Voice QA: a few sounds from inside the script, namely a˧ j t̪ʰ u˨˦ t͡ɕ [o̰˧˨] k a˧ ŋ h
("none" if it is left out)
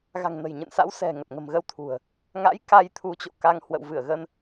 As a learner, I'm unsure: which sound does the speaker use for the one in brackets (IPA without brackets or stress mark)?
o̰˧˨